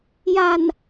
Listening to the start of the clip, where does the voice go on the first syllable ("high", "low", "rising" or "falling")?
low